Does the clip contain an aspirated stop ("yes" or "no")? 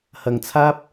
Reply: yes